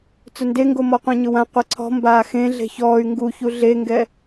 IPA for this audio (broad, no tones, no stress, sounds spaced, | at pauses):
t͡s ʊ n d e ŋ ɡ o m ɔ qʷ ɛ̃ ɲ ʊ w ã qʷ e ǀʰ ɔ̤ m b aː x ẽ ɮ e̤ ç ɔː y̯ ŋ ɡ u ç u ɮ e ŋ ɡ ɛ